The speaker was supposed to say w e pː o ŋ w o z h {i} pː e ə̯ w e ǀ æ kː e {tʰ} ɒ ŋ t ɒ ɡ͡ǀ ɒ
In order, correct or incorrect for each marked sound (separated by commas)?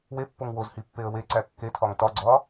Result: correct, correct